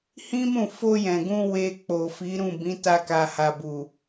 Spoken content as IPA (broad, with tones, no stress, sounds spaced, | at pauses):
h ĩ˦ m ũ˦˨ f o˧ j ɛ̃˨ ɡ ũ˧ w e˧ k͡p o˨ f i˨˦ ɾ ũ˦˨ b ĩ˨˦ t a˧ k a˨ h a˨ b u˨